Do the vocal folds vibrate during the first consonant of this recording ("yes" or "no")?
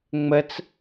yes